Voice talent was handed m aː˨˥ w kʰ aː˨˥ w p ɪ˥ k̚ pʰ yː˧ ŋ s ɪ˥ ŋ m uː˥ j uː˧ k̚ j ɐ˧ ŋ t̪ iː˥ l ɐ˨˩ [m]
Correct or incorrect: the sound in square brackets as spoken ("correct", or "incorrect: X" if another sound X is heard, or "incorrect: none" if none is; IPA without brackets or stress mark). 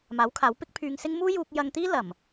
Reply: correct